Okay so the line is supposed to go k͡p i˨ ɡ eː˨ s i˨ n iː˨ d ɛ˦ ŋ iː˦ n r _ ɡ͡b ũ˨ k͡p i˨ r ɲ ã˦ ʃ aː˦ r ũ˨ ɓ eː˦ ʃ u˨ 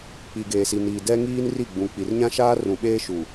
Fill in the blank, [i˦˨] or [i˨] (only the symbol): i˦˨